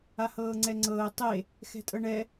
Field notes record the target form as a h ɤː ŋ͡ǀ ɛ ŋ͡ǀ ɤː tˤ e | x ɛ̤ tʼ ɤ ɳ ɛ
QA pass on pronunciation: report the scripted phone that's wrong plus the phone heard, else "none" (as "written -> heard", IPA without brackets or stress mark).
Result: none